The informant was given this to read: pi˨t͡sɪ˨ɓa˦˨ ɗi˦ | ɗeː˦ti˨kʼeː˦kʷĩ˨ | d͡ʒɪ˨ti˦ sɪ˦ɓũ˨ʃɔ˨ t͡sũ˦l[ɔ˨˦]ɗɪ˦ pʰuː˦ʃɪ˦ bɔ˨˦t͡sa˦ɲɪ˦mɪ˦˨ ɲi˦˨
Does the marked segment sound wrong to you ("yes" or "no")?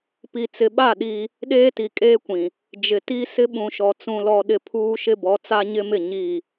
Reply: yes